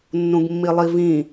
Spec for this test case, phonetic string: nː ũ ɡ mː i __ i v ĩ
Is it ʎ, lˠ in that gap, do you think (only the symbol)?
lˠ